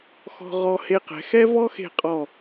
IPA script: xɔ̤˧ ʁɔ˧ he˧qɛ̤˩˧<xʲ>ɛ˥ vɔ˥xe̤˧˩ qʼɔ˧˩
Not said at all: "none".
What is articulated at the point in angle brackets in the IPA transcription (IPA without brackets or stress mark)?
x